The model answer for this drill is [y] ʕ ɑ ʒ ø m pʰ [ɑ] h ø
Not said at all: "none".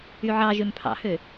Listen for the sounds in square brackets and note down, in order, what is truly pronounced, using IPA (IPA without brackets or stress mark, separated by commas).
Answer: y, ɑ̰